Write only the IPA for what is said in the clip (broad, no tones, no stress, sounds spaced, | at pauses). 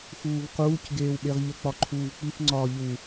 x uː v q uː c ɡ eː w ɓ e ʁ ʎ ə k͡p ɒ ǃʰ uː v k͡p i f ŋ͡ǀ ɒː ʎ u